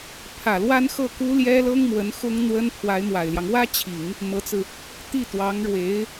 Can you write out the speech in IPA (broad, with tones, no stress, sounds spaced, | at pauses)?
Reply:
pʰ ä˨˩ l w a˥ n x ɤ˥˩ k u˥ l j ɛ˥ l ɤ˥ ŋ m w ə˧˥ n x ʊ˥ ŋ n̪ w ə˥ n pʰ w a˧˥ ɪ̯ m w a˨˩ ɪ̯ l j ɑ˦ ŋ w ä˥ t͡ɕʰ i˨˩˦ ŋ | m ɤ˧˥ t͡s ɹ̩˧ | t̪ i˥˩ t̪ w ɑ˧˥ ŋ ɻ w e˧˥ ɪ̯